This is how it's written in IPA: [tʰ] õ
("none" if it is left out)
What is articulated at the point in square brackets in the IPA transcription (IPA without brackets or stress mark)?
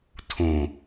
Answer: tʰ